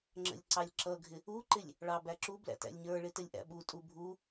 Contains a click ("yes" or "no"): yes